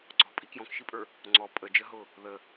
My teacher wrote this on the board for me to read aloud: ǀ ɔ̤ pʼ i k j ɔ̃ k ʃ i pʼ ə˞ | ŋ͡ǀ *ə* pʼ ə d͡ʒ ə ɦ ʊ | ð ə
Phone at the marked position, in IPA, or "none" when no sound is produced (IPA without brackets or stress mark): ɔ